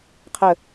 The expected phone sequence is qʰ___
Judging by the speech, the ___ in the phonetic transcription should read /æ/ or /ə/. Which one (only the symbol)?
ə